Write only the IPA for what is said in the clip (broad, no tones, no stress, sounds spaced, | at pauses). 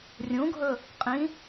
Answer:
rʲ ũ ɡʱ ɵ | qʼ ĩ